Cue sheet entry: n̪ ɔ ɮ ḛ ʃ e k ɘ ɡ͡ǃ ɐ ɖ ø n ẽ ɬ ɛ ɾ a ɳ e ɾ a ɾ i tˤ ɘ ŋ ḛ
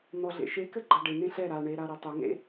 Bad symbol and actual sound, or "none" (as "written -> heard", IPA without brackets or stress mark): ø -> e